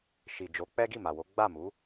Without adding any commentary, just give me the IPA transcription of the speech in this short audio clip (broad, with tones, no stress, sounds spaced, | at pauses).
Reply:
ʃ i˨ d͡ʒ o˨˦ k͡p ɛ˦ ɡ i˦˨ m a˨ w o˨˦ ɡ͡b a˦˨ m u˨˦